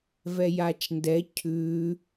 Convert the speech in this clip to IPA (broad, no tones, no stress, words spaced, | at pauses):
vɛjat͡ʃndɛ cʰʉ